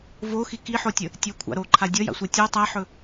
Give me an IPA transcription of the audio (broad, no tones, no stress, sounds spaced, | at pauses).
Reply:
v o x i k i ħ o tʲ ə | tʲ ɵ kʷʰ a̰ ɾ o ǃʰ a dʲ ʌ j a̰ sʷ ʌ tʲ o tˤ æ ħ ɵ